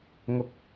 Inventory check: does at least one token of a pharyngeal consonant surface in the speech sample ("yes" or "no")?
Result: no